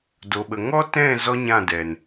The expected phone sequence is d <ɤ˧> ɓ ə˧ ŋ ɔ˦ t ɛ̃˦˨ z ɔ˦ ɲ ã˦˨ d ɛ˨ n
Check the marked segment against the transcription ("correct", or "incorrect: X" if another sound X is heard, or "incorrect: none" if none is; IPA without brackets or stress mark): incorrect: o˧